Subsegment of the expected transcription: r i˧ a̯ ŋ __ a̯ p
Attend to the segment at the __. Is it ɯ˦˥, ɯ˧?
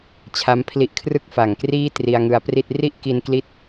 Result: ɯ˧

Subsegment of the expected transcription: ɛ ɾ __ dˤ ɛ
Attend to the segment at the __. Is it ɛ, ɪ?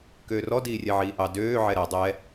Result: ɛ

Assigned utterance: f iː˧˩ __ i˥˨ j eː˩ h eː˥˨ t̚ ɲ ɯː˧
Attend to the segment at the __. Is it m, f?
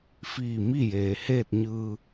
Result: m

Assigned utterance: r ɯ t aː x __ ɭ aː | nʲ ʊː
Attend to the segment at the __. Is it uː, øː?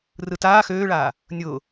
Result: øː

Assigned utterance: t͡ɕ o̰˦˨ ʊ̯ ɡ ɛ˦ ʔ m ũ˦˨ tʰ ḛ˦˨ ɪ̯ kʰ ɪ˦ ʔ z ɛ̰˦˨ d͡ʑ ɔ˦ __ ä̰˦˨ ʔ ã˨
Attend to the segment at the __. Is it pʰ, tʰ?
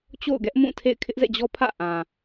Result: pʰ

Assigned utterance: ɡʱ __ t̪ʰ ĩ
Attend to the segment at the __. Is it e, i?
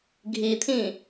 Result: i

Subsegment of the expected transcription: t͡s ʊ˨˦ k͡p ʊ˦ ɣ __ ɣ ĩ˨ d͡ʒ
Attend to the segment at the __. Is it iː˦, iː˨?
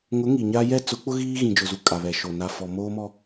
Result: iː˦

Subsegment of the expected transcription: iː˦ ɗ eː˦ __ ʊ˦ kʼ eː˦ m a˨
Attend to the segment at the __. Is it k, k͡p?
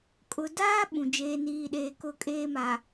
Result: k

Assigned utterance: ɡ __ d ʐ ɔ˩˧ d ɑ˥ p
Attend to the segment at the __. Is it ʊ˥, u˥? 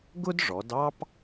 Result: ʊ˥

